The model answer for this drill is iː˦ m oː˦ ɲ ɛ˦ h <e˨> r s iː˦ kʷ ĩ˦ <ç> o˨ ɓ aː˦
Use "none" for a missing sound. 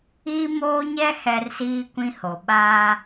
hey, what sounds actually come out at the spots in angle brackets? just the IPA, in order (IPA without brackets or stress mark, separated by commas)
ɛ˨, h